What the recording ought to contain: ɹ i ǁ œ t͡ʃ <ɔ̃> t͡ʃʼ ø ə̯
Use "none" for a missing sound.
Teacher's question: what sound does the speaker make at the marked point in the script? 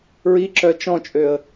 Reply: ɔ̃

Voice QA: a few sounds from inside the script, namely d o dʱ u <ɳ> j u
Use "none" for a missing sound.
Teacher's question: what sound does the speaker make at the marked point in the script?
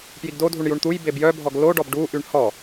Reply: ɳ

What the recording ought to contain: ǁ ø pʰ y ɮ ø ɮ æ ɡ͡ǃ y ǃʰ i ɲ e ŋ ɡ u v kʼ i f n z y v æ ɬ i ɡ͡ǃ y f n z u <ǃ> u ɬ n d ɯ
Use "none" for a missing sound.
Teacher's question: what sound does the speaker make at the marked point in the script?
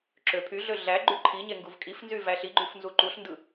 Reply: ǃ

